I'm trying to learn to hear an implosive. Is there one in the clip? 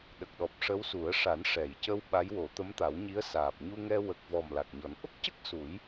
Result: yes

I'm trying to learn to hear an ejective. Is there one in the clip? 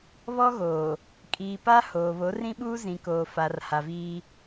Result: yes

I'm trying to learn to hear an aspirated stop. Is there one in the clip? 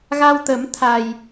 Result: yes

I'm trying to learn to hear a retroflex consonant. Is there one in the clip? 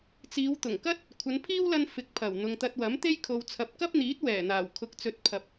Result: no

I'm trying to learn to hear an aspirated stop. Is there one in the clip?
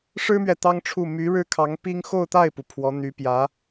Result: yes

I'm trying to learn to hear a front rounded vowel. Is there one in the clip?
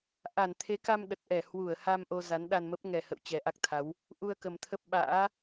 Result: no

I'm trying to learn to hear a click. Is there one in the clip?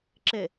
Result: yes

